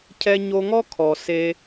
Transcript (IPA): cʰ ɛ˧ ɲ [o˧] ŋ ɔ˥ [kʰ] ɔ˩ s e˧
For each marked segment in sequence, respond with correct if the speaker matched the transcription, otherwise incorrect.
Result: correct, correct

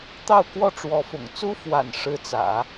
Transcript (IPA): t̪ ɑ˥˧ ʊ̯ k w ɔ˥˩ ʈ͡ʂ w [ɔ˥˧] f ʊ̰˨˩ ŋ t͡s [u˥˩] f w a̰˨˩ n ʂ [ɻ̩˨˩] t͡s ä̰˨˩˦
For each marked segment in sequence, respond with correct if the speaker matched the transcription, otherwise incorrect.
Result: incorrect, incorrect, incorrect

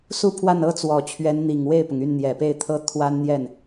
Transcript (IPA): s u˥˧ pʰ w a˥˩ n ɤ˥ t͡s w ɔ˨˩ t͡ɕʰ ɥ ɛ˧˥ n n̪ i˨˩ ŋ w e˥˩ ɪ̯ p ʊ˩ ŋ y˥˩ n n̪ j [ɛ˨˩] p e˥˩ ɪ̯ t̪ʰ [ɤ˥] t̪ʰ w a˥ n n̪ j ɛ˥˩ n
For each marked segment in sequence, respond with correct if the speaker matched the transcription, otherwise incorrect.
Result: correct, correct

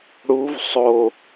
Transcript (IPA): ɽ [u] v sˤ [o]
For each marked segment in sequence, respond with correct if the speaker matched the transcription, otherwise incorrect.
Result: correct, correct

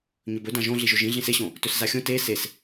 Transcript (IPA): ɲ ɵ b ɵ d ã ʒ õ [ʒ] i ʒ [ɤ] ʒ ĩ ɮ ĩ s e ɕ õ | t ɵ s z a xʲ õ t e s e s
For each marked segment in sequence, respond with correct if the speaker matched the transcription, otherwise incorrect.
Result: incorrect, incorrect

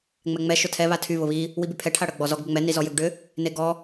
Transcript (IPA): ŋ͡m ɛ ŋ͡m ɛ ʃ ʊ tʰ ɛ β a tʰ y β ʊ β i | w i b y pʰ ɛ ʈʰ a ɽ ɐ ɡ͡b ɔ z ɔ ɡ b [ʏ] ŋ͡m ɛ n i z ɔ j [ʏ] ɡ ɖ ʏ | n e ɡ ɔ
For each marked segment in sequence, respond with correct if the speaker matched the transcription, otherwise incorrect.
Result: correct, correct

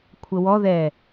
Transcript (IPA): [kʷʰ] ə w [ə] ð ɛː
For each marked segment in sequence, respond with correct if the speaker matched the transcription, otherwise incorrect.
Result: correct, incorrect

